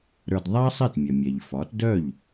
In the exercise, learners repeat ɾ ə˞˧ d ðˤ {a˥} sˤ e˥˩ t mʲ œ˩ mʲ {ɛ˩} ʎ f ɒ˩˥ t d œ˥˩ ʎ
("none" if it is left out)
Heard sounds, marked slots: a˥, ɛ˩

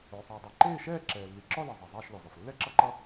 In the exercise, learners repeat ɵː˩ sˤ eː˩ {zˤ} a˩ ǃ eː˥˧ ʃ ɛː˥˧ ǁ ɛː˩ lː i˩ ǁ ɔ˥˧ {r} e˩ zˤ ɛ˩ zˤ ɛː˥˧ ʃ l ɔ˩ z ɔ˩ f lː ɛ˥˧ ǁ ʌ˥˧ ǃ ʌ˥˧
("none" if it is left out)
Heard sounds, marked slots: dˤ, l

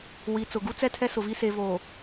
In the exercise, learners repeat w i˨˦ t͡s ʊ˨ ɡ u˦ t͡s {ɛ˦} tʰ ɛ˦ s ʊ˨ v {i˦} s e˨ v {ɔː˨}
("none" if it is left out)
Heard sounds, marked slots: ɛ˦, i˦, oː˨

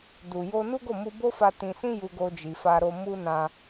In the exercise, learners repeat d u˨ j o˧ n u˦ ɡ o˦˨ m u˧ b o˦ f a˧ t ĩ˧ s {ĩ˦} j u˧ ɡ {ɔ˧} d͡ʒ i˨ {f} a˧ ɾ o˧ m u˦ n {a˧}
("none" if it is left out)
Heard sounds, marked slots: ĩ˦, o˧, f, ã˧

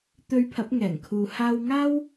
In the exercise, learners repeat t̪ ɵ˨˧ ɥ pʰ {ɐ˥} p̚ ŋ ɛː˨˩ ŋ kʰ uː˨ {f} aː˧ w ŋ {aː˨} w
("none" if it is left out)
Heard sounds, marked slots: ɐ˨˥, h, aː˥

